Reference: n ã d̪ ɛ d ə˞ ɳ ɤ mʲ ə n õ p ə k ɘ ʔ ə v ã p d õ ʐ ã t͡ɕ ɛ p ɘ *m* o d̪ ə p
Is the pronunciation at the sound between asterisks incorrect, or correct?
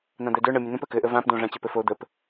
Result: incorrect